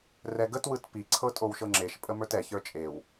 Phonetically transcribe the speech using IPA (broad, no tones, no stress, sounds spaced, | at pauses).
r ɛ ɡ ə t w ɯ t p i ǀʰ ɤ tʼ o w ʃ ɤ ŋ͡ǁ e ʃ pʼ ə m ə˞ t ɛ ç ə˞ t͡ʃʼ e w